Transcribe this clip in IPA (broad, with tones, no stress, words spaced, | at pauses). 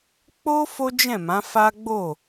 k͡po˦ fo˦d͡ʒɛ̃˦˨mã˨˦fa˦ ɡ͡bo˦˨